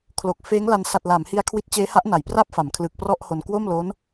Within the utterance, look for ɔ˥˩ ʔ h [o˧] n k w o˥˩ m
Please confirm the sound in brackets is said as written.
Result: yes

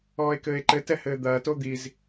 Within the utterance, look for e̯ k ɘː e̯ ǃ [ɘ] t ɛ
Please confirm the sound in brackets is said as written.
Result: yes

